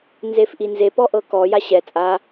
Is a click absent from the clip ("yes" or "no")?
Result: yes